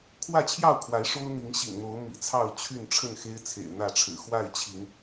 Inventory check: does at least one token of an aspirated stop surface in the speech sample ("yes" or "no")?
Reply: yes